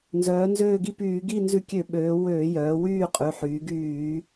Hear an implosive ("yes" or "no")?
yes